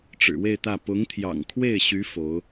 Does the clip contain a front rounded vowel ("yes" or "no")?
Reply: yes